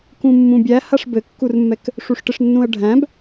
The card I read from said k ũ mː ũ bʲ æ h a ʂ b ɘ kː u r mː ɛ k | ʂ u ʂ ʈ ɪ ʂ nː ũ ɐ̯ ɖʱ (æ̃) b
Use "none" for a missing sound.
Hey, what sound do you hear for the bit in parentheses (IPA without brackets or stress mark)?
æ̃